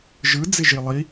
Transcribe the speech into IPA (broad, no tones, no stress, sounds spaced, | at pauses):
ʒ ɯ d͡z ɪ ʒ i lˠ i